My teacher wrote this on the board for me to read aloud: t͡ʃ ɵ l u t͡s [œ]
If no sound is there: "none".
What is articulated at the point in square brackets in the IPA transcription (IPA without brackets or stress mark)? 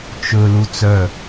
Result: œ